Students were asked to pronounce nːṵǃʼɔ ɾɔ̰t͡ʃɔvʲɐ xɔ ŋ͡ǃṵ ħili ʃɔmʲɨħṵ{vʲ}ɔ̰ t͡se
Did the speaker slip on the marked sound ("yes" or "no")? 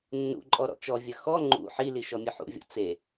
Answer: no